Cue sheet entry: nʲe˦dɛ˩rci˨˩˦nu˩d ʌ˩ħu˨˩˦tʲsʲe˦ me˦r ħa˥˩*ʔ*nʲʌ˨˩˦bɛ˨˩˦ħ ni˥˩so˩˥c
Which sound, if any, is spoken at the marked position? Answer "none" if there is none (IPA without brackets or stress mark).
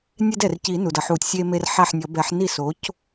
ħ